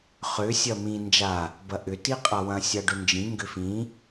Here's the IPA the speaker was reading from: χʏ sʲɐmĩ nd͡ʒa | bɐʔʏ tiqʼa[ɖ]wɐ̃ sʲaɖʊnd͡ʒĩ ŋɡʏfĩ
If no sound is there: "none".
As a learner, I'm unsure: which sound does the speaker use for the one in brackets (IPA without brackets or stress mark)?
none